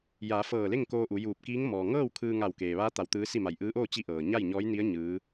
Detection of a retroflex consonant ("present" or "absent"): absent